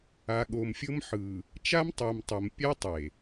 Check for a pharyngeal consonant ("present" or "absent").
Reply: present